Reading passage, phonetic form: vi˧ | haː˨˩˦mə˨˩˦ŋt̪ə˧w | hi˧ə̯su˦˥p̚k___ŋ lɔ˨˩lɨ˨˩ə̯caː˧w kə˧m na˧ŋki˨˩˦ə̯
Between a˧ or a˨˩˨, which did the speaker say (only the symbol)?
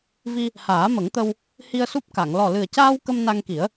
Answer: a˨˩˨